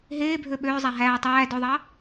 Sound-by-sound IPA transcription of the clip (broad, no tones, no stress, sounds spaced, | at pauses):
ɦ eː bʱ ø ɓ øː zˤ æ ɦ æː tˤ æː d ø ðˤ ɑ